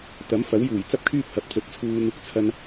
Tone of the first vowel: rising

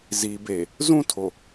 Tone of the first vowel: low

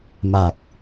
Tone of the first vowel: low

